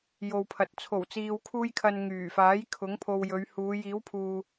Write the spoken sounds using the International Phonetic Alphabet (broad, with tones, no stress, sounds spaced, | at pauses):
j o˨ w pʰ ɐ˨ t̚ t͡sʰ o˨˩ w t͡s iː˨ w kʰ uː˧ j kʰ ɐ˨ n ŋ yː˨˩ f aː˨˥ j kʰ ʊ˨˥ ŋ pʰ o˧ w j ɵ˨˧ ɥ h uː˨˧ j iː˨˥ w pʰ uː˨